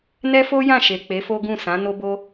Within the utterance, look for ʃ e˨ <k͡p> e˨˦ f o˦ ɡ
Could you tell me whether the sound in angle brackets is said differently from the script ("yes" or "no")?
no